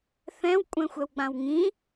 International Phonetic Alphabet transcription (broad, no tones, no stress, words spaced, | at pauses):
θɛ̃w kʷʼɛ̃xʷɛwɡ͡bãwŋĩ